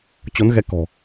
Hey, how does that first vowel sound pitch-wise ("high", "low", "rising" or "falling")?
rising